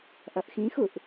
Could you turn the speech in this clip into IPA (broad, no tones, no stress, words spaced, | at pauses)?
ʔʌʔxĩxuʔ